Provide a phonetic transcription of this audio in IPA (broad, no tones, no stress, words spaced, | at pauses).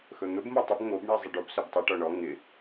xɵn̪ɵb motˤɵb ŋobɳi zˤɪɖob sɵbtˤɯʈɔ ɳɔ ŋɪ